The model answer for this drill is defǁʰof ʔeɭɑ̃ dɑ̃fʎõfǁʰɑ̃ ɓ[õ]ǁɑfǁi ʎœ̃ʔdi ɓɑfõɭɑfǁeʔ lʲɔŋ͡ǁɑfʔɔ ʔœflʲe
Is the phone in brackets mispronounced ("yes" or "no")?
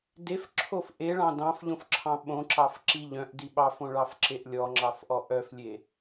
no